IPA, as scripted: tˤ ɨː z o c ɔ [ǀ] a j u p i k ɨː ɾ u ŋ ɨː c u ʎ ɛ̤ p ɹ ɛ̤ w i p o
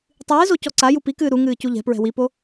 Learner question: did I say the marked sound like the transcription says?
yes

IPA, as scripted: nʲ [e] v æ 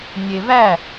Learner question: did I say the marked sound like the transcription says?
yes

